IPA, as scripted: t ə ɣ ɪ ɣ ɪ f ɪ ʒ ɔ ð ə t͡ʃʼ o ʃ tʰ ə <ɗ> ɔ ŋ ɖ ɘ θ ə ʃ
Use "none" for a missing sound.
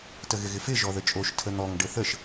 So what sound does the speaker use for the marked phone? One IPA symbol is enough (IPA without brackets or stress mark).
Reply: n̪